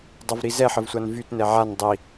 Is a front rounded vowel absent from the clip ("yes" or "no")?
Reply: no